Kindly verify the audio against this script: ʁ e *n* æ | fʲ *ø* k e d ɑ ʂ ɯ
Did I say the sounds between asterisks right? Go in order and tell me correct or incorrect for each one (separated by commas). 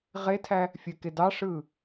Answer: incorrect, correct